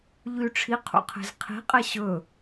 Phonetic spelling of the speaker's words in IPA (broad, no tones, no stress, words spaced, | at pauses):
ʎy ʈ͡ʂʰiqʰṵ qʰe̤zqʰi̤qʼɛ ɕɵ